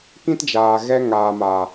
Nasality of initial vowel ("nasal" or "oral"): nasal